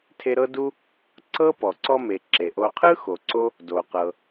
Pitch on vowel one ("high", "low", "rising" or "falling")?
high